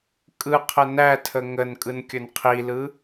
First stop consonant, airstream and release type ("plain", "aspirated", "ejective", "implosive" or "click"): ejective